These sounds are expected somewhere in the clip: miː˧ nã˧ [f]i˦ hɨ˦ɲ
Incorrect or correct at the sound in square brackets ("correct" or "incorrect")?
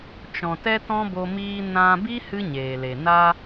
incorrect